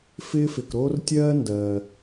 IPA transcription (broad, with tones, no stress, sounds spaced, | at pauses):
f ɪː˥ f ɪ˧ k ɾ oː˥ r tʲ ɜː˥ n d ɜː˧